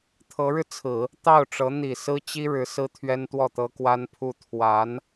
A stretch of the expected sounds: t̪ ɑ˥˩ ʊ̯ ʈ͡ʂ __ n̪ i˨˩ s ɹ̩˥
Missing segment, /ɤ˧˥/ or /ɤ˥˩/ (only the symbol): ɤ˧˥